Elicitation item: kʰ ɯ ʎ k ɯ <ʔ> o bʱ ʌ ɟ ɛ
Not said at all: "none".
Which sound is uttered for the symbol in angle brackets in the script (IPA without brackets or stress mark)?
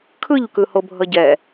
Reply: h